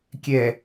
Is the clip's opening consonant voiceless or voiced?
voiceless